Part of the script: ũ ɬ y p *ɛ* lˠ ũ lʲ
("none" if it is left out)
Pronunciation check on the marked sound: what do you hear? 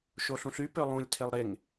ø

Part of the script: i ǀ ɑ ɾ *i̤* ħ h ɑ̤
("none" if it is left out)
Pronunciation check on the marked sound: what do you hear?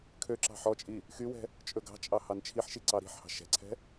i̤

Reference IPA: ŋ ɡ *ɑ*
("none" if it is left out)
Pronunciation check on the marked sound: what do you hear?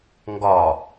ɒ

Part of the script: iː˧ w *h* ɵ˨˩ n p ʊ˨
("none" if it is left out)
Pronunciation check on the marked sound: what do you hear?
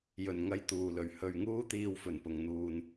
f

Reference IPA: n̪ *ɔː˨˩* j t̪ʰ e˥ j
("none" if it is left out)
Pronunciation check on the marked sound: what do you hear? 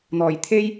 ɔː˨˩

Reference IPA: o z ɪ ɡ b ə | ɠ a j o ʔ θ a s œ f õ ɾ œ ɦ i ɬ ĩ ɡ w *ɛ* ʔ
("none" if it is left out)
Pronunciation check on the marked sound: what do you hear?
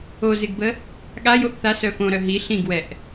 ɛ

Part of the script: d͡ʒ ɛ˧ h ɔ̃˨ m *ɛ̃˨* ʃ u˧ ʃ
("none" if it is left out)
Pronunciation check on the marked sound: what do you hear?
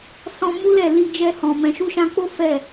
ɛ̃˨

